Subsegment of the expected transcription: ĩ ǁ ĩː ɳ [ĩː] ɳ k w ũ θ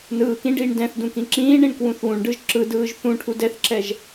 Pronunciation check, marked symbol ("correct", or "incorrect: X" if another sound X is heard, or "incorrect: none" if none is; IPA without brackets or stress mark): incorrect: ĩ